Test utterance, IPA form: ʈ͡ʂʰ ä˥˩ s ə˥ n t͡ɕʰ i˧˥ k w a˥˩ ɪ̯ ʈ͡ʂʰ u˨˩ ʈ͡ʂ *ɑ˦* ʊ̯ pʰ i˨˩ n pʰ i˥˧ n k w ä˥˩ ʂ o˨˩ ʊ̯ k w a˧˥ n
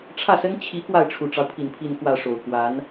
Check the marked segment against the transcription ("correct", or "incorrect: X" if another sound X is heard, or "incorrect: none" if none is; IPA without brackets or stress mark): correct